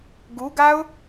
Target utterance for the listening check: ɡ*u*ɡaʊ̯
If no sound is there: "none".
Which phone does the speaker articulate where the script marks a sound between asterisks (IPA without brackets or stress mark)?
u